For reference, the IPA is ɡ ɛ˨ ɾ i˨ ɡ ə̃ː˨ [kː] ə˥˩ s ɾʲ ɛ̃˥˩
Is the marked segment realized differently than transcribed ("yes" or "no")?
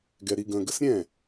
yes